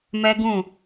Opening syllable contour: high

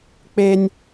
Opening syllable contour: high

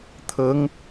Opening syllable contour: rising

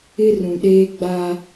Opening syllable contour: high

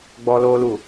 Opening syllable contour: high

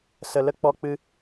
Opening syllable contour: low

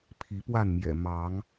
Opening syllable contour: rising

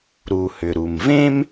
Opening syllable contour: low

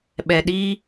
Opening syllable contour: low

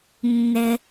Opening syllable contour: low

